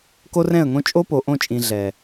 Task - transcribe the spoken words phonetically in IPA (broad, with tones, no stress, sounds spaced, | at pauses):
k o˦ r ɛ̃˦˨ ə̯ ŋ õ˦ t͡ʃʼ o˦ p o˨ ʔ õ˦˨ t͡ʃʼ ĩ˨ ɮ ɛ˨